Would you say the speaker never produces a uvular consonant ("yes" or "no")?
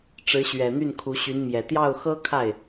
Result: yes